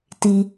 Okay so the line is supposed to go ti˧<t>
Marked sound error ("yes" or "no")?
yes